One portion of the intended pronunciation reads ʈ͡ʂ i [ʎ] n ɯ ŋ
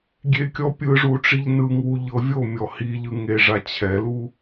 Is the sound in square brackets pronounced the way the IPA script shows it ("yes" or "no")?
yes